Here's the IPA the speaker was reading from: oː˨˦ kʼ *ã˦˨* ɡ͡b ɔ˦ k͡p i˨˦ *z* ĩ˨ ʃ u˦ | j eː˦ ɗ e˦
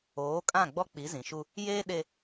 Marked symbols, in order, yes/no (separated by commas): yes, yes